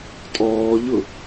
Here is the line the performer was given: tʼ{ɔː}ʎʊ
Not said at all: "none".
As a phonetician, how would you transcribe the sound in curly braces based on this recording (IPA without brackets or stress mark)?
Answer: ɔː